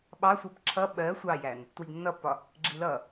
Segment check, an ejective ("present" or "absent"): absent